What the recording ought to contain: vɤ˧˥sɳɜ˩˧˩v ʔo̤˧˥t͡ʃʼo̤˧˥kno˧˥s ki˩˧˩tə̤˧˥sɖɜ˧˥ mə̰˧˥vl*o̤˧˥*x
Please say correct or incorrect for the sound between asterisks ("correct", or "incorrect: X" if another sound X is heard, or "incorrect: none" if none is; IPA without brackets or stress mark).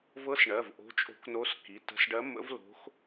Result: correct